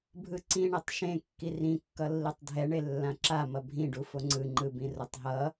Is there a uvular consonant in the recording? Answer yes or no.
no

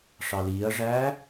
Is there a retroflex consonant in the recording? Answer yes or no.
yes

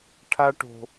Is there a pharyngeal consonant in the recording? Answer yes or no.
no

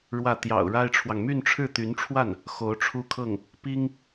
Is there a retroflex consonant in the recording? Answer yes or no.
yes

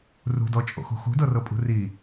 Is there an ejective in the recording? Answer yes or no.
yes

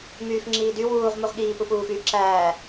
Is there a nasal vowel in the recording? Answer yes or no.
no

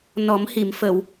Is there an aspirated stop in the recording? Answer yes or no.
no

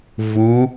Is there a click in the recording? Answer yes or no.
no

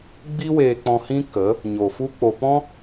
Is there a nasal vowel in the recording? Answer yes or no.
yes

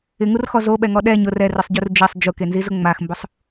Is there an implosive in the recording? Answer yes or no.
yes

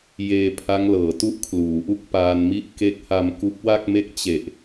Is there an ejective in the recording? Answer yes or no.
no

